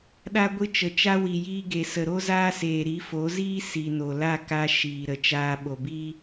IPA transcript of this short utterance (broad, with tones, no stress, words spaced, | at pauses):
ɗa˧ɡʷɨ˧ t͡ʃə˨t͡ʃa˦ wi˨jiː˧ɡe˨ sə˨ɾo˦zaː˦seː˨ ɾi˨˦fo˨˦ziː˦ si˨no˨ la˦˨ka˧ ʃiː˨ ɾə˨t͡ʃaː˧ ɓo˨biː˦